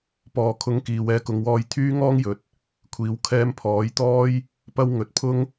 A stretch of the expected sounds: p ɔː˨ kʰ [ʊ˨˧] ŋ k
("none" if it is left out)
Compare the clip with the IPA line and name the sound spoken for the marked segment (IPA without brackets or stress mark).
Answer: ʊ˨˥